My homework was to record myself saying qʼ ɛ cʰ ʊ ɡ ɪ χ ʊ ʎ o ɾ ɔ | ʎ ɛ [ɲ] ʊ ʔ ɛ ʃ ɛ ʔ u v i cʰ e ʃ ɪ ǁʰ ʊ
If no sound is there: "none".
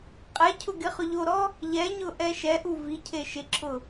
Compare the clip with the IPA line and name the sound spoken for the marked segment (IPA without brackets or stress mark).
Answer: ɲ